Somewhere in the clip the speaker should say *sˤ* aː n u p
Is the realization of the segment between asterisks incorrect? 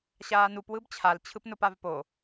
yes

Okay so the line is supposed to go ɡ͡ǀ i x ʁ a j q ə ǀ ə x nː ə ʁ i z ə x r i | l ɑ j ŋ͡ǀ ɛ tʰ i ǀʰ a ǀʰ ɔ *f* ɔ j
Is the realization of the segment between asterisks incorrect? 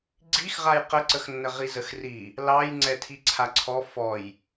no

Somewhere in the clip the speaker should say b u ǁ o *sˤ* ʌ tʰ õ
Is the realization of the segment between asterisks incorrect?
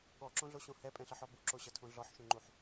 yes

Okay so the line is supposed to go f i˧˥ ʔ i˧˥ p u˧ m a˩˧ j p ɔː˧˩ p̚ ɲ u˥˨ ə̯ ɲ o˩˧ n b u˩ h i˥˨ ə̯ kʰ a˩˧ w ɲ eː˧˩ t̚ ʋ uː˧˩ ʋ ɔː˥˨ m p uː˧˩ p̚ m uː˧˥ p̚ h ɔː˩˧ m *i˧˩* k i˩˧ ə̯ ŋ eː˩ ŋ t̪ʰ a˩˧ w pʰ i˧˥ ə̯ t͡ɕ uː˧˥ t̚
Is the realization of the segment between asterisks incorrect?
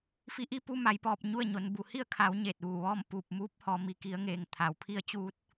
yes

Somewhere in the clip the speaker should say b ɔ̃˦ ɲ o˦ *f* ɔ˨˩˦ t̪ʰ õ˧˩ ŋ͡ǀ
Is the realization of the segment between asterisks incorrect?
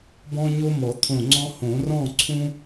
yes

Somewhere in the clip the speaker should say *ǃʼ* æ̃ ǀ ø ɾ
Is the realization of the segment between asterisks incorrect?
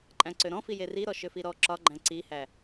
no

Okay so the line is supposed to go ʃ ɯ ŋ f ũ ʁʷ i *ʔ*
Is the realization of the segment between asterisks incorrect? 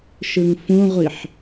yes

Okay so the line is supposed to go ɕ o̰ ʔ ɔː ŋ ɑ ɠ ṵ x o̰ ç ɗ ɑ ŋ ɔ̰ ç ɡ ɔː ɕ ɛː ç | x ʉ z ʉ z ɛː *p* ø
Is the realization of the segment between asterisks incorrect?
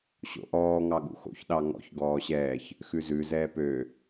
no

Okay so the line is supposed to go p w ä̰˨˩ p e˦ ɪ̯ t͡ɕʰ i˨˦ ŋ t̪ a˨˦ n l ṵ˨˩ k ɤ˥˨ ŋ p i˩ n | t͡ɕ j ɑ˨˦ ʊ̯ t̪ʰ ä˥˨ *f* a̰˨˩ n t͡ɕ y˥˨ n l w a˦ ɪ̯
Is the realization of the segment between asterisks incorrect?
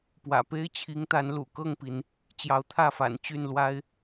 no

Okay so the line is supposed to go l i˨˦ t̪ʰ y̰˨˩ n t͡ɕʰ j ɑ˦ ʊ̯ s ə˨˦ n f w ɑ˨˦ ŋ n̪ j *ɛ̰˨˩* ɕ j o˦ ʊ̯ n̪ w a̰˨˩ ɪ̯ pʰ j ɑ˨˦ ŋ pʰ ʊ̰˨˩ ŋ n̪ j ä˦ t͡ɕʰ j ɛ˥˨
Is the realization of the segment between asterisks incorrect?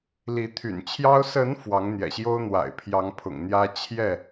no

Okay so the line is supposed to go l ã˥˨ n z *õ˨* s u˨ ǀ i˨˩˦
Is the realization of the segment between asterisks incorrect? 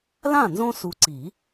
yes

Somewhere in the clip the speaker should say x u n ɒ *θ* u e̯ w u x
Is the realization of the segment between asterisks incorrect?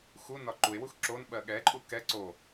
yes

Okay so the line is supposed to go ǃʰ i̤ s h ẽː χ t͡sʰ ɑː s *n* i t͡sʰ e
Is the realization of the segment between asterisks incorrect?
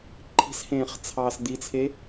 yes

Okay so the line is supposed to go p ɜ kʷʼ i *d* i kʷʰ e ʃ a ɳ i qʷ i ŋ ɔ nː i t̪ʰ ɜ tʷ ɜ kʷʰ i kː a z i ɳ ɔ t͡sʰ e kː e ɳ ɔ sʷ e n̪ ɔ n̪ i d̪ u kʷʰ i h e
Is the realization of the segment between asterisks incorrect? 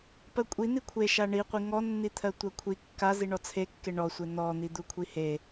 yes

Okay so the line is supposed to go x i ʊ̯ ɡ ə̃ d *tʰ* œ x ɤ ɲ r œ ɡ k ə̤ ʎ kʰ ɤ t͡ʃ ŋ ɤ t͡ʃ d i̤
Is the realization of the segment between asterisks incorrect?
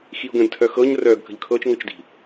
no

